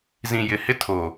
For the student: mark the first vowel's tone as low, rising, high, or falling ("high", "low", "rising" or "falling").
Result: low